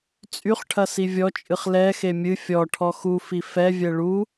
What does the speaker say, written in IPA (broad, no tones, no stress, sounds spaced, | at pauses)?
t͡sʼ y χ ʈʰ ɐ s i vʲ ɔ t͡ʃʼ ɨ χ l ɛ x e mʲ ɨ fʲ ɔ ʈʰ ɔ x u f i f ɛ vʲ ɛ ɭ u